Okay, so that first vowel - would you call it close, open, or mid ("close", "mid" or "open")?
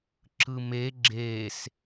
close